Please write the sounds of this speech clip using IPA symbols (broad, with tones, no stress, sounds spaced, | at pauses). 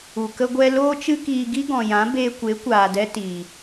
u˨ k ə˦ ɡʷ ɛ˦ l oː˦ t͡ʃ ɨ˦ k iː˧ ɡ i˦ ɡ ɔ̃˨ j ã˨˦ b eː˧ kʷ e˨˦ kʷ aː˨ d ɛ˧ t i˨